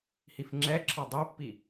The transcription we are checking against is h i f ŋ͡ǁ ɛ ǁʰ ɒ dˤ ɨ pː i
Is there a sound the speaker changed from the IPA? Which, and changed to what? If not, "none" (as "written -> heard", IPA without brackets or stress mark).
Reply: ɨ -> i